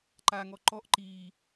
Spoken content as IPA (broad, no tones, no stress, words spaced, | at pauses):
ǃaŋɔ ǃɔʔ ǃi